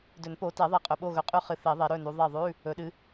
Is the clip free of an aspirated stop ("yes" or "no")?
yes